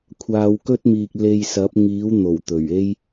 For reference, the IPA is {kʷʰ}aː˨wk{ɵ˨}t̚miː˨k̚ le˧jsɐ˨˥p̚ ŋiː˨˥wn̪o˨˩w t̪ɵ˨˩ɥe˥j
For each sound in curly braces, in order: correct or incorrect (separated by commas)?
correct, incorrect